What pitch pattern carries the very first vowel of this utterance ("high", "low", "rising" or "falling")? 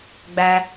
low